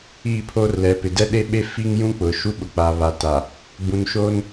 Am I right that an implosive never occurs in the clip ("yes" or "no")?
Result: no